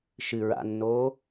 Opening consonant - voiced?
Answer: no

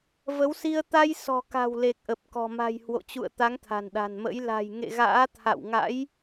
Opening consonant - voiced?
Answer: yes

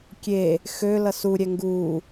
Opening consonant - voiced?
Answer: no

